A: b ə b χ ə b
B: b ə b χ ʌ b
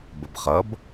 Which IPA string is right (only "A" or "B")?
B